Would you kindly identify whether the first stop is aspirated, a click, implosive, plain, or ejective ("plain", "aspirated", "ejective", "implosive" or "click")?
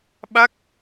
implosive